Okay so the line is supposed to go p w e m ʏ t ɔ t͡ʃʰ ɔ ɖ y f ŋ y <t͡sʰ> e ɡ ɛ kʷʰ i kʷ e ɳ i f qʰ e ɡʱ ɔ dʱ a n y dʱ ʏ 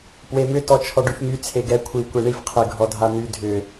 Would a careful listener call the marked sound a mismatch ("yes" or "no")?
no